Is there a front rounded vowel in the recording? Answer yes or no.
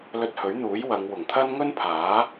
no